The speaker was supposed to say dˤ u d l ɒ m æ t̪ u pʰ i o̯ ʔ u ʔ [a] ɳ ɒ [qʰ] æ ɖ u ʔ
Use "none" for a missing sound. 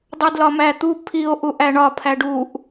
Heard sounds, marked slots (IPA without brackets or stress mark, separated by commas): æ, pʰ